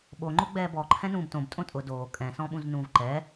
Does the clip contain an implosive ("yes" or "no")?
yes